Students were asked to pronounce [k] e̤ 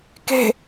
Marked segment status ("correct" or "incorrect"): correct